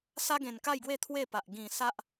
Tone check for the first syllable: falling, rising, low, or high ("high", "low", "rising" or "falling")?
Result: high